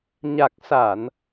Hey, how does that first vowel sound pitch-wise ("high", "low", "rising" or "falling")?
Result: low